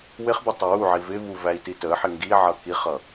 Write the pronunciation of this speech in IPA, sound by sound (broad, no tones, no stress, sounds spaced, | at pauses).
w ɪ χ b ɪ tˤ ʌ w u ʕ i v ɪ v u v æ i̯ t i t ə ħ ɪ ŋ ɡ i ʕ ʌ k i χ ʌ